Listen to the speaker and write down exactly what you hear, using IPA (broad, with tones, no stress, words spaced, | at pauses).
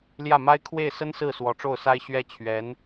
ljä˥˩ma˥ɪ̯ kʰwe˥˩ɪ̯ sə˥nsɹ̩˥˩ swɔ˧˥ʈ͡ʂo˥˩ʊ̯sa˥ɪ̯ɕɥɛ˥ t͡ɕʰɥɛ˧˥n